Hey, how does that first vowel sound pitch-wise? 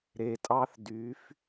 low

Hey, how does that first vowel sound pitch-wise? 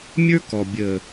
high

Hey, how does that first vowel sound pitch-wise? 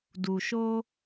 low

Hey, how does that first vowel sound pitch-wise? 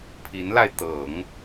rising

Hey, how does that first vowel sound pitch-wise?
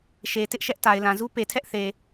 low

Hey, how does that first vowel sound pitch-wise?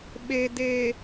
low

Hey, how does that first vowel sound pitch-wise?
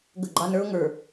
falling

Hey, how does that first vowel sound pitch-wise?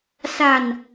low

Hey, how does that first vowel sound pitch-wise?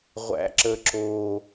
low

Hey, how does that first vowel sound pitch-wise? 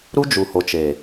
high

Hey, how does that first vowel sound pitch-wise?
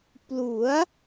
rising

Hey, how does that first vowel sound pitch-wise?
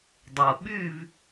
low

